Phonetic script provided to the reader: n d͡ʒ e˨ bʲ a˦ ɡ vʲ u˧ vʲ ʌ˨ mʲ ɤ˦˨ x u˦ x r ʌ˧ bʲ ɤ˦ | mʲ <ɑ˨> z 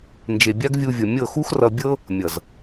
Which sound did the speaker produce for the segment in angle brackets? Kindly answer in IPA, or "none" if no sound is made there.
ʌ˨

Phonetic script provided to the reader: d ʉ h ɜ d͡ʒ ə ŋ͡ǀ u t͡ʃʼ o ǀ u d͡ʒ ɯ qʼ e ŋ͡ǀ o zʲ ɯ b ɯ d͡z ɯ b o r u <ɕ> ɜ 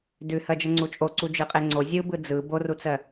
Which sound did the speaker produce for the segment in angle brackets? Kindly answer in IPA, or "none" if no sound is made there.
t͡s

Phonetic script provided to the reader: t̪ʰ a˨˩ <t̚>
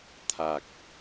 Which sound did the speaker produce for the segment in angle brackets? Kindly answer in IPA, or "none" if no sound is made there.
k̚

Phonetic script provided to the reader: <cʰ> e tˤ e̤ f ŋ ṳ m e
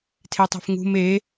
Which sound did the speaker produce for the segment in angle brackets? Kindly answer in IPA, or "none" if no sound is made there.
tʰ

